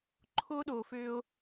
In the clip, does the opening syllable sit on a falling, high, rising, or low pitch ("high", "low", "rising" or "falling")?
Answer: high